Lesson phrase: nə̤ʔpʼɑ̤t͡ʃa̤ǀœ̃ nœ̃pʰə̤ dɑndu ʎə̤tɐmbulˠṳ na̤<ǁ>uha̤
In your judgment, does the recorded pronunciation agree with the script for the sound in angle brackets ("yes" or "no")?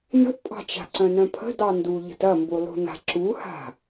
yes